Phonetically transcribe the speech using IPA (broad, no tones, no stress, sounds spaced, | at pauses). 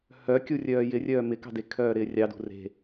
h œ kʲ u rʲ œː j ɪ rʲ œː m ɪ k ɑ̤ d e kʰ œː ɾ ɪː rʲ ɑ d ṳ r e̤